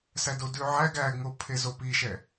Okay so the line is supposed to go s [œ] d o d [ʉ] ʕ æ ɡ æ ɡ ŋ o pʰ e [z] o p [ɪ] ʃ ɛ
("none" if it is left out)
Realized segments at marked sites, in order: æ, ʉ, z, i

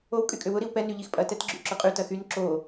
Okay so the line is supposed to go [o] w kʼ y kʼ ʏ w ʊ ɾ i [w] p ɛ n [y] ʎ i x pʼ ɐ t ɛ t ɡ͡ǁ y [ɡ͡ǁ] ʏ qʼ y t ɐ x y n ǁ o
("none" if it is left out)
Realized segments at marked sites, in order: o, w, y, ǁ

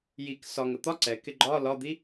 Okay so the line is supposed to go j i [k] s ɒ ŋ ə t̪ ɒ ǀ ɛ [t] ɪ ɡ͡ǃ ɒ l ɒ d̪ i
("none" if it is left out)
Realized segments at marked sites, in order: k, k

